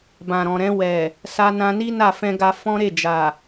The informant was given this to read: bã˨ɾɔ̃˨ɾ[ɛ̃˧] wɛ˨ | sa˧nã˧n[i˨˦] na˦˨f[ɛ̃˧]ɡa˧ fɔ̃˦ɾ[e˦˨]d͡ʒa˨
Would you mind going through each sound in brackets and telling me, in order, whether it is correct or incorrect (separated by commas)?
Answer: correct, incorrect, correct, correct